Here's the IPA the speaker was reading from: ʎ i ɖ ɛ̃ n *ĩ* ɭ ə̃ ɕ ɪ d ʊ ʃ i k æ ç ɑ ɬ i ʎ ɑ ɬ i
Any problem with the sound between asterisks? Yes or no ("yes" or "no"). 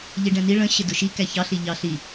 yes